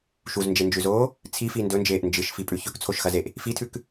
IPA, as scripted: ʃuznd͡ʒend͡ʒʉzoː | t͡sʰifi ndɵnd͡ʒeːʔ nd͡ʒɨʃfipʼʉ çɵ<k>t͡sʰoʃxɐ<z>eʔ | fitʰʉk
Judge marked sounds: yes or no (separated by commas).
yes, yes